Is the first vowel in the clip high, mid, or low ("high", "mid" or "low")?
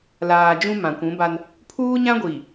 low